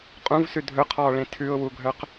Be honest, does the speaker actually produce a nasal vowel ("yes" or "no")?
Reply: yes